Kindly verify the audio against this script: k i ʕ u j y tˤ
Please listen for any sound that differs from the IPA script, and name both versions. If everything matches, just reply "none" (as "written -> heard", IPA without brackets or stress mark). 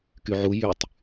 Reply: i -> y